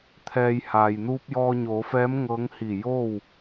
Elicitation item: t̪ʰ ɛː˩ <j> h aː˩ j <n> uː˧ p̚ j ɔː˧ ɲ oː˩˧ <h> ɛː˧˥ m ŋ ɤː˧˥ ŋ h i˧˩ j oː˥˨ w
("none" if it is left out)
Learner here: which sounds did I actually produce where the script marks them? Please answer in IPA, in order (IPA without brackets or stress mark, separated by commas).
j, n, f